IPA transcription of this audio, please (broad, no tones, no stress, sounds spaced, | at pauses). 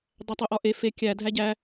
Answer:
dˤ æ tˤ o ʔ ɒ ʔ e f e kʲ æ dʱ æ ɟ æ